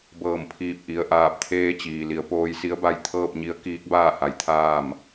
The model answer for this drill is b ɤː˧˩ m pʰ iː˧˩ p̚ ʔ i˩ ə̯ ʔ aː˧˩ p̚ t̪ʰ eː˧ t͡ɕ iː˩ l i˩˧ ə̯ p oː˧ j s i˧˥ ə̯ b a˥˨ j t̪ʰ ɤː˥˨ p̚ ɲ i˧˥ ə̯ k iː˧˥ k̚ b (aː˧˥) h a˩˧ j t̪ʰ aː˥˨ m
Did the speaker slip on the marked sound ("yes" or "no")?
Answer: yes